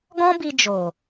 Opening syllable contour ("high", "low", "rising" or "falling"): high